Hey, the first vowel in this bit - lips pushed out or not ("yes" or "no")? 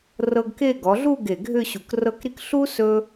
no